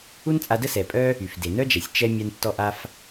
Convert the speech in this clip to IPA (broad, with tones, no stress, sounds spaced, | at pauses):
u˥ n t͡sʼ a˧ d ə˥ s ɛ˩ pʼ œ˥ | y˩ f d e˩ n œ˥ d͡ʒ ɛ˩ sʲ t͡ʃ ɛ˥ mʲ a˥ n tː ɔ˥ ʔ a˥ f